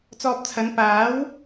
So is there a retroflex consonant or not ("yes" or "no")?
no